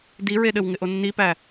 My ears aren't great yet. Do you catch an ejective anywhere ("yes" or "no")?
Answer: no